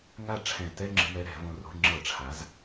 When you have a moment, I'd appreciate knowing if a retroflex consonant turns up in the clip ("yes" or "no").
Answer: yes